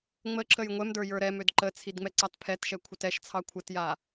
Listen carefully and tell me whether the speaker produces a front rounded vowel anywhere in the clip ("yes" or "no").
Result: yes